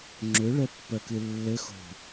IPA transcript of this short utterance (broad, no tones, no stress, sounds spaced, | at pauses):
ŋ͡ǁ ʏ ɭ ɛ pː ɜ k ɨ lː ɘ x o̤